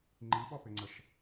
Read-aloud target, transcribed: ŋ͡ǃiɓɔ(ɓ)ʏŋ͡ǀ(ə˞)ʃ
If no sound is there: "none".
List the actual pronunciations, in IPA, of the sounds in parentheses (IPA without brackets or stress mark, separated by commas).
p, ə